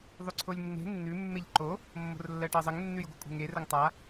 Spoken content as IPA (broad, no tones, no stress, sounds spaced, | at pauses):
ðˤ ʉ ǀʰ o lʲ nː e̤ nː ʉ mː e ʎ ǃ o | mː o̤ r lː ɜ ʈ ɜ zˤ ə ŋ nː ʉ j ɡʷ ɨ kʷʼ e̤ ŋ e r ə ŋ tˤ a